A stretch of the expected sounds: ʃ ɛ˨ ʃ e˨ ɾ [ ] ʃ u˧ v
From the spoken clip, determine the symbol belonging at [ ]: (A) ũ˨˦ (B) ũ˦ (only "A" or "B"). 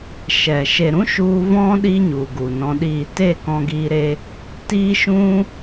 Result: B